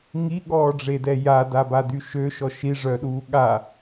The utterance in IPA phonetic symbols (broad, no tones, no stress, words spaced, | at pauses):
ŋiɠɔːɖ͡ʐedɛ jadabady ʃøʃɔ ʃiʐœɗuː ɠa